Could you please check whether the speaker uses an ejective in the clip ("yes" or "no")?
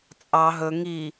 yes